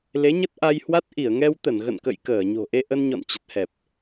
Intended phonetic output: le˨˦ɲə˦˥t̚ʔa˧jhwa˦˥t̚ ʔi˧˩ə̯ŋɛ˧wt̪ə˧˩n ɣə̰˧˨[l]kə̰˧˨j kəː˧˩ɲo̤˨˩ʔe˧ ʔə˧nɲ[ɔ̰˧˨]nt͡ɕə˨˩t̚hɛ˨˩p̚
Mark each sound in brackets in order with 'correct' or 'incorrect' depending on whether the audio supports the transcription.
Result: incorrect, correct

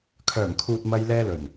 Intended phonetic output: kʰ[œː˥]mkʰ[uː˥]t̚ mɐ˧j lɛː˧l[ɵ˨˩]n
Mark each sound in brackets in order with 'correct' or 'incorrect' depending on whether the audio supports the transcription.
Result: incorrect, incorrect, correct

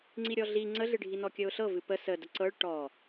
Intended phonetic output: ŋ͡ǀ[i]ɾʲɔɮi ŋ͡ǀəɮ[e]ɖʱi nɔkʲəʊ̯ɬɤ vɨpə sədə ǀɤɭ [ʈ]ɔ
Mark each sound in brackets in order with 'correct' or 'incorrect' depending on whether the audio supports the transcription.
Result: correct, incorrect, correct

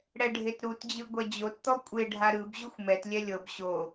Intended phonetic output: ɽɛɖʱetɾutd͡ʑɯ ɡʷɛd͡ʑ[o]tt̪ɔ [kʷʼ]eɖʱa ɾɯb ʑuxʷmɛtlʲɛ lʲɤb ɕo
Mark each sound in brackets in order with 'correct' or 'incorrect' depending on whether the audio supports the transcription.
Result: correct, correct

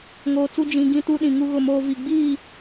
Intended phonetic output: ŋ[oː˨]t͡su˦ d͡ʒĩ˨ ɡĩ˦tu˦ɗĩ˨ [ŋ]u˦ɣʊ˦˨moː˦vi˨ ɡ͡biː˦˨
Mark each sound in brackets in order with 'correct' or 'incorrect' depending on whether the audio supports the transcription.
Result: correct, correct

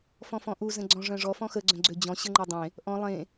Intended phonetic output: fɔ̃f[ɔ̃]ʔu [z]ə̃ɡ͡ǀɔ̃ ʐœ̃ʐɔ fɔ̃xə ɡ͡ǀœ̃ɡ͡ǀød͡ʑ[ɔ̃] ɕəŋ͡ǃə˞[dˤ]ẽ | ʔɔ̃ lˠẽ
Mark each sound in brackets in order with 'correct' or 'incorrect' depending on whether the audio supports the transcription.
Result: correct, correct, correct, correct

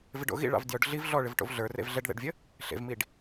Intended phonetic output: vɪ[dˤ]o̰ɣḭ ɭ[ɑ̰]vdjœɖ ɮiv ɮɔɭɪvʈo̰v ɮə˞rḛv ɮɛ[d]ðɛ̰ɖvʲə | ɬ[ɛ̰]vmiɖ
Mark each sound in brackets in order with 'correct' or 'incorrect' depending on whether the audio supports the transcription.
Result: incorrect, correct, incorrect, incorrect

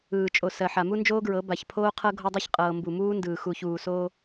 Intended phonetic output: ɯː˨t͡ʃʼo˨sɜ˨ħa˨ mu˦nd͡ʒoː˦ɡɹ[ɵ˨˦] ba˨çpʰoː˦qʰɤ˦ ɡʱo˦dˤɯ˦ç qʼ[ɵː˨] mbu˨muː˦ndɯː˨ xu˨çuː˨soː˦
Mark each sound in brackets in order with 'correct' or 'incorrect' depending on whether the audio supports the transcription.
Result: incorrect, incorrect

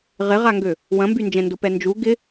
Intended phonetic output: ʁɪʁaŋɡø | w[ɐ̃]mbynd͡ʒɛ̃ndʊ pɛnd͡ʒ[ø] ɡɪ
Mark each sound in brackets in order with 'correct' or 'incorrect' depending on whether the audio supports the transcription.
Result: correct, incorrect

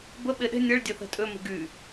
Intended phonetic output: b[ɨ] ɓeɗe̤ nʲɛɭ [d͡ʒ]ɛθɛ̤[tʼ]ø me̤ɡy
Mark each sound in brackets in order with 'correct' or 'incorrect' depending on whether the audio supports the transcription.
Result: incorrect, incorrect, correct

